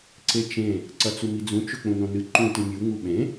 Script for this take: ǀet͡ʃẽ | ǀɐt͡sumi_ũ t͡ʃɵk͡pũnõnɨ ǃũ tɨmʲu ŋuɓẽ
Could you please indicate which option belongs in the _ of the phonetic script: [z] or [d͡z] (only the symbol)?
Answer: d͡z